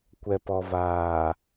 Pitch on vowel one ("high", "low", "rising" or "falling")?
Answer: low